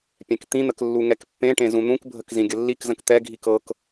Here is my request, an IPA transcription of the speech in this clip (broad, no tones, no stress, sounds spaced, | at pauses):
pʲ ɛ̃ k t̪ ĩ n̪ ə k lː u ŋ ɛ k pː ẽ ʈ ẽ z ũ n̪ ũ k bʱ ə k z ĩ ɡʲ ə lː i k z ə̃ k t̪ ɛ ɡʱ i k ɤ k